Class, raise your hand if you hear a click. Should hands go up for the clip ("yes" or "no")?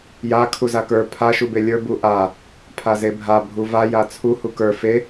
no